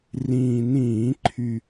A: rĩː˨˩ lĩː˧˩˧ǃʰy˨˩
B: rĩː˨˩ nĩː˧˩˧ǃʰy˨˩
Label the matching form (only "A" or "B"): B